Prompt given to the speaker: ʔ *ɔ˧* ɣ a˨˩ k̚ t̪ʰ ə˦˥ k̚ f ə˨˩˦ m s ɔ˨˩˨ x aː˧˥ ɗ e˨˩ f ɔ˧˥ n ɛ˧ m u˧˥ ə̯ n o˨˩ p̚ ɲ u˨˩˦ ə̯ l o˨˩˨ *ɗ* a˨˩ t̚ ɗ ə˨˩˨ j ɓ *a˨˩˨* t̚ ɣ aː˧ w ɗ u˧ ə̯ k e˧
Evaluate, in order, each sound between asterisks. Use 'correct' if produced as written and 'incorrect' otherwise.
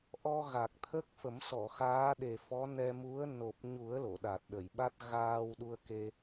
correct, correct, incorrect: a˦˥

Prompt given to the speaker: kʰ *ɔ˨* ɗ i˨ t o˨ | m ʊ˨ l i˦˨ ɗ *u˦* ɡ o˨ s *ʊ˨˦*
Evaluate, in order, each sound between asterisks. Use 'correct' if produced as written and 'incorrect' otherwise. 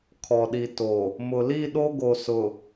correct, incorrect: o˦, incorrect: ʊ˨

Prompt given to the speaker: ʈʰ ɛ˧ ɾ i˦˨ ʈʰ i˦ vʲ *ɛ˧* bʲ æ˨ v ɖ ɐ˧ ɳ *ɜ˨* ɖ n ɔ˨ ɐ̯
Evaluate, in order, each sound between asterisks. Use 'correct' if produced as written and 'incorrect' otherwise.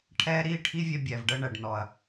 correct, incorrect: æ˨

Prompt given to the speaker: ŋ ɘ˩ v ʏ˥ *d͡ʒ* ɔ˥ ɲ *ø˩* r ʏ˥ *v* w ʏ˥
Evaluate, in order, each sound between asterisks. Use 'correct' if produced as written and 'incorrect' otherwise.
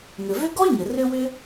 incorrect: ɡ, incorrect: ɘ˩, incorrect: none

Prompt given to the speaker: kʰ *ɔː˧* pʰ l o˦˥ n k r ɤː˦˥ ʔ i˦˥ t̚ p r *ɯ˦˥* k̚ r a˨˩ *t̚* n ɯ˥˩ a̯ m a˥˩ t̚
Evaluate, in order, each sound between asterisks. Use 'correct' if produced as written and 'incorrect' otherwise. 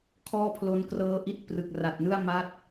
incorrect: ɔː˥˩, incorrect: ɯ˨˩, correct

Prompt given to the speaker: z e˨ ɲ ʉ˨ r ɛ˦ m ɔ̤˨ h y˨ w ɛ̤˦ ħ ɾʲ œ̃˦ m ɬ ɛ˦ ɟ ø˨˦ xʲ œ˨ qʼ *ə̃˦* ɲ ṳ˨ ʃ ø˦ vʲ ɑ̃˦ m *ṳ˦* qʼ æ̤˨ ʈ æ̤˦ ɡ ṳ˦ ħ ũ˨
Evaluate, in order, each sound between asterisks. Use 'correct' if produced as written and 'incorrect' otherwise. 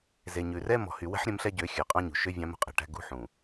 incorrect: ɑ̃˦, correct

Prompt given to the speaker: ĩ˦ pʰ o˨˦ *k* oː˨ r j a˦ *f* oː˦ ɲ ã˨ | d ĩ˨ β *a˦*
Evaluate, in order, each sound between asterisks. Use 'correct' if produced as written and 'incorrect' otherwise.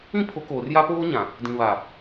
correct, incorrect: p, incorrect: a˨

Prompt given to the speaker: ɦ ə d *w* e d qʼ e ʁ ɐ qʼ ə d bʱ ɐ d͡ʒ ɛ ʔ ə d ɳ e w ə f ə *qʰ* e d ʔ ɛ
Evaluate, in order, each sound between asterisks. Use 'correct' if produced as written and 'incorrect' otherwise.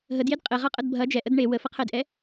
incorrect: j, correct

